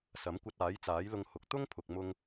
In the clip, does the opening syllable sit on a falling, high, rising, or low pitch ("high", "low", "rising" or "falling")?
rising